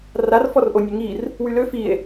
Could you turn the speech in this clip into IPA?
r a r f ɔ r ʔ o nʲ ø ŋ i r | w y l ø f i e̯

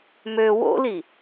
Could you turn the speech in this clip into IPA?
m ø w o̰ l i

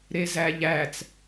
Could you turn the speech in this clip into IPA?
ɾ e z æ ʎ æ t͡s

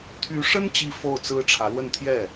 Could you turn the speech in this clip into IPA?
t̪ʰ y˧˥ ʂ ə˥ n t͡ɕ i˥ f o˥˩ ʊ̯ t͡s ɹ̩˥ ʈ͡ʂʰ ä˧˥ l w ə˥˧ n t̪ʰ j ɛ˥˩

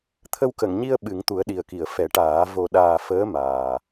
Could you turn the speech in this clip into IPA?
t̪ʰ ə˧ w k ə˨˩˨ ŋ ɲ i˧ ə̯ ɓ ɨ˨˩˦ ŋ t̪ u˨˩˦ ə̯ ɗ i˨˩ ə̯ k i˨˩˨ ə̯ f ɛ˨˩˦ ʈ aː˨˩˦ v o˨˩ ɗ aː˨˩ f əː˧˥ m aː˨˩

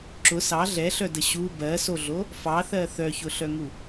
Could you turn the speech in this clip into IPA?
ǁ ʊ s ɑ ɮ ɛ ɬ œ d ə ɕ u b ɜ s o ɮ o | f ɑ θ ɜ θ œ ç ʊ ɬ œ ŋ u

